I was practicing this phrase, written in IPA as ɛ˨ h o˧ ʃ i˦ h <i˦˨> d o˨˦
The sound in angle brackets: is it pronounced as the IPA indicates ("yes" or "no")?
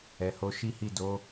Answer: yes